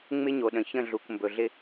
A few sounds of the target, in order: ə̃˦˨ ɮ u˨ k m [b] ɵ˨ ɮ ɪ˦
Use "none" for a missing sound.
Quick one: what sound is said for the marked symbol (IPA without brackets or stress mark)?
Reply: b